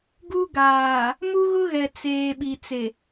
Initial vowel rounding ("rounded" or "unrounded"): rounded